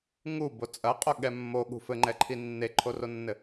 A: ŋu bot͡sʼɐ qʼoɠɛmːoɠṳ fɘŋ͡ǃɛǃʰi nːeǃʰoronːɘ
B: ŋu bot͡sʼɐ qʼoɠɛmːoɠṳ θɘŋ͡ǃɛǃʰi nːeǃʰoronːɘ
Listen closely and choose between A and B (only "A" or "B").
A